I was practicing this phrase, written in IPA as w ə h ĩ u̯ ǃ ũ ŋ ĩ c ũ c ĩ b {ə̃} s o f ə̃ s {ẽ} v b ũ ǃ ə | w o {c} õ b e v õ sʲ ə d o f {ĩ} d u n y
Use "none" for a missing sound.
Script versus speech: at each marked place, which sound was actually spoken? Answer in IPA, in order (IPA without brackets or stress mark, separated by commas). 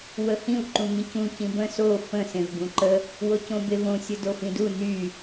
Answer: ə̃, ẽ, c, ĩ